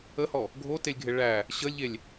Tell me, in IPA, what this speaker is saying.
ə h ɔ | ɡʱ o t e lʲ ɡʱ e ɭ æ | ɕ ə lʲ ʎ e lʲ

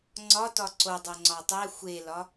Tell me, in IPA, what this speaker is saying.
ŋ͡ǀ ɒ t ɒ ǀ o dˤ o ŋ͡ǀ ɒ tˤ æ xʷ e l ɒ

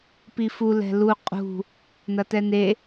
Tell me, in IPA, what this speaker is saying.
p i f u l ɛ̤ l u qʼ ṳ | n ɐ t ɛ n e

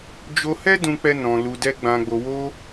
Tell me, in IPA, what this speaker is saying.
d͡ʒ o˧ h ɛ˦ d ũ˧ k͡p ɛ˦ n ɔ̃˧ l u˧ d ɛ˦ ɡ͡b ã˧ ɡ͡b o˧ w o˦

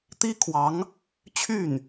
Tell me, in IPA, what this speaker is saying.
t̪ i˥ kʰ w ɑ˧˥ ŋ | t͡ɕʰ y˥˩ n

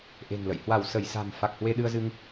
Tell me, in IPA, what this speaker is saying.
ʔ e̤˨˩ ŋ l ə̰˧˨ j h w a˧˩ w s ə˧˩ j s a̤˨˩ m f a˨˩ k̚ h w e˧ ɗ ɨ˧ ə̯ z ɨ˧ ŋ

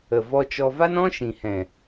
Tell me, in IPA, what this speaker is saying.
ə˨ v ɔ˧ t͡ʃ ɔ˧ v a˦ n ɔ̃˦ ʃ ĩ˨ h ɛ̃˨

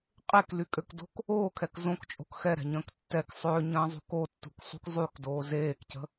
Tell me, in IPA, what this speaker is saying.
qʼ e k l y kʼ ø k d o̤ k | oː kʰ ɛ k z õ k t͡ʃʼ o̤ k x ɛ ɾ ɛ̤ ɲ ə̃ː k tː ɛ k sˤ ø ɲ ə̃ː zˤ ṳ k o tː ṳ k sˤ ṳ k zˤ y k d oː z eː k c ə̤

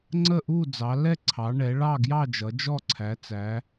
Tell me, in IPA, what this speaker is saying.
ŋ͡ǀ ə˥˨ ʔ u˥˨ d͡z ɑ˩˧ l ɛ˥˨ ǀʰ ɑ˩˧ ɳ ɛ˩˧ ɭ ɑ˥˨ ɡ j ɑ˥˨ d͡ʒ ʌ˩˧ d͡ʒ ɔ˥˨ ǀʰ æ˩˧ t͡s æ˩˧

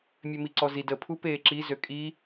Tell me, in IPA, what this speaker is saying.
mʲ ø m i ǀ ɔ z i d ə pʰ u p eː ǁ i z ø kʼ i

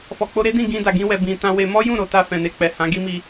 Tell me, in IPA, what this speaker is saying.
f ɔ˨ k͡p o˧ ɾ e˦ d ĩ˦˨ ɡ ĩ˧ d a˨ ɡ ĩ˧ w ɛ˨ b ĩ˨ t ã˧ w e˧ m ɔ˦ j ũ˦˨ ɾ o˨ t a˧ f ɛ̃˨ n e˧ k͡p ɛ˨ h ã˨˦ ɡ i˦ m i˧

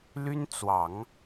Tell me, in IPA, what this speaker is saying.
l y˥ n t͡s w ɑ˨˩˦ ŋ

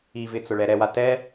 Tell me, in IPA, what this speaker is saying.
i v ɪ t͡s ʊ ɭ ɛ ɾ ɛ w a t ɛ

